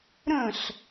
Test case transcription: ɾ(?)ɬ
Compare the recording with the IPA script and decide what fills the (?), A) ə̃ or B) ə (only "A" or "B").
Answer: A